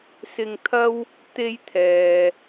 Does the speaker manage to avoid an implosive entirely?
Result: yes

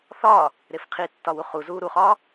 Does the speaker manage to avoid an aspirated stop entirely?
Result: no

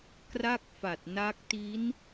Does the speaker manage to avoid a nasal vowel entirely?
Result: yes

